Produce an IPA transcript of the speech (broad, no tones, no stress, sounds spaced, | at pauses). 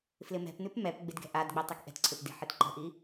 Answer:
f l ɪ m ɛ̤ p n ʉ p m ɛ p ɡ͡b ɪ d ɡ ɛ̤ ʔ a d ɡ͡b ɛ tˤ ɛ k ʔ ɛ̤ t ǀʰ ɪ p d i̤ ħ e t ǃ ə̤ ʔ i